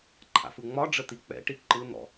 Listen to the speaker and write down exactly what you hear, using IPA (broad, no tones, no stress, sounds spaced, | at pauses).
ǃʰ a̰ f ɯ ŋ͡m ɒ ɖ͡ʐ ə t̪ i k͡p ɛ̰ ʈ i ǃ ɯ n̪ ɔ̰